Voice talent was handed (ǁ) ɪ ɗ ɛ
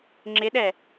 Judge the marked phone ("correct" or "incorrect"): incorrect